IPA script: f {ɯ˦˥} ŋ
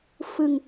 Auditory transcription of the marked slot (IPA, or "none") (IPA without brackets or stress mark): ɯ˧